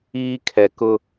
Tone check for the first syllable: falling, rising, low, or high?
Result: high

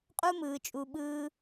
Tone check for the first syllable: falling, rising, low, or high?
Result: high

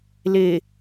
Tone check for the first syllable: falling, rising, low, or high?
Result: low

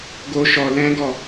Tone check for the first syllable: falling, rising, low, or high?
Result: high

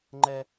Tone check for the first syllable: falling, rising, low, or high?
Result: high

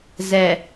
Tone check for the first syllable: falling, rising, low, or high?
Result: low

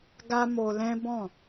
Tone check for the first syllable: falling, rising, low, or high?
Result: high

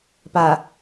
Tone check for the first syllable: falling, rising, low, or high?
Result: low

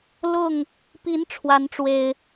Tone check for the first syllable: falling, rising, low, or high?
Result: falling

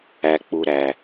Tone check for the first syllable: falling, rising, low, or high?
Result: low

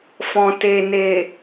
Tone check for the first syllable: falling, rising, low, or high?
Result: low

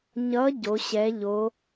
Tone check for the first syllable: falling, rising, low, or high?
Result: rising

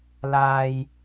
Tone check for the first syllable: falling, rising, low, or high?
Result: low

